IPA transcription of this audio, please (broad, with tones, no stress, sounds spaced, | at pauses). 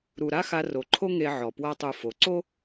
ɾ u˨ ɾ a˦ x a˧ r o˨ ǃʰ o˦ ŋ e˧ ʕ ɔ˨ p w a˦ tˤ u˧ f o˨ ǀ o˦